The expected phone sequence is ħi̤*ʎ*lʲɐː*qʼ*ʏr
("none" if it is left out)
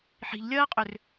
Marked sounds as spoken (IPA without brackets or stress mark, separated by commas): ʎ, qʼ